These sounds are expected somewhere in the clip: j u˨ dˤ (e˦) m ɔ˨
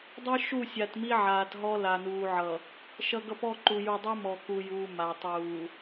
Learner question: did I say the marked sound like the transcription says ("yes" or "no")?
no